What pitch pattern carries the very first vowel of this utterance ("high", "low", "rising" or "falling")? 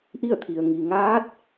falling